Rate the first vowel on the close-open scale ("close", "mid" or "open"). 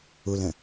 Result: close